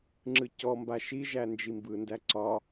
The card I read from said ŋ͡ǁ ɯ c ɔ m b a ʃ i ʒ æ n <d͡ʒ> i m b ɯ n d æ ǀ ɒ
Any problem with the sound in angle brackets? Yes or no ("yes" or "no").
no